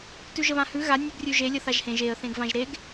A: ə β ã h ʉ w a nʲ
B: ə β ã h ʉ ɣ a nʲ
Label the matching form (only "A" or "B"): B